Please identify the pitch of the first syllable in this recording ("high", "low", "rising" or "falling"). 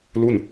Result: falling